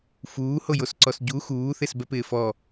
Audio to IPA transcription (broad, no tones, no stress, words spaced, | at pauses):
fuːhojosǀɔs ɟu xuːθesbɛpɪː fɔ